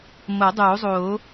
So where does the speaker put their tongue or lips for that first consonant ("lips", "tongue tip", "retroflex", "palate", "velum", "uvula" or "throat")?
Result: lips